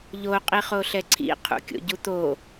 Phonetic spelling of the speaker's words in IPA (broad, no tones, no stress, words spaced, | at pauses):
ʎo qʼiχoɬɛǀʰḭ qʰṵkʲo̰ɟut̪o